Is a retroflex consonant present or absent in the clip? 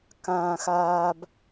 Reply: absent